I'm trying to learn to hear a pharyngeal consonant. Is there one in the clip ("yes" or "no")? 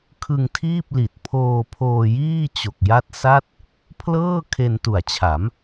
no